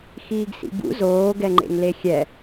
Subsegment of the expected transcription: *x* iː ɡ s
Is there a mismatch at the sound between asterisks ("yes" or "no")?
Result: no